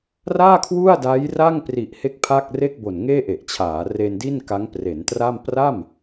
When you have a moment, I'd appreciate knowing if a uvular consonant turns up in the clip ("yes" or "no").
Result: no